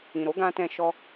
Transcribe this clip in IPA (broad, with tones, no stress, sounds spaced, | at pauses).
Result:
ĩ˨ ɾ o˨˦ ɡ ã˧ t ɛ̃˧ ʃ ɔ˧